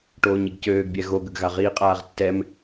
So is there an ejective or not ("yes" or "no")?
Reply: yes